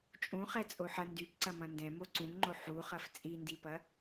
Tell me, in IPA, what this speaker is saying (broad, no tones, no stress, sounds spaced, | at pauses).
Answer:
t͡ʃʼ ũ χ ɛ t͡sʼ o ħ ɐ n d y p ǀ ɐ m ɐ̃ n d ɛ̃ m o ǀ ũ ŋ ŋ͡ǃ o ħ u χ ɐ f t͡sʼ i n d i p ɐ